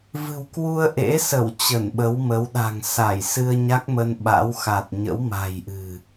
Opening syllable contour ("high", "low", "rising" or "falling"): low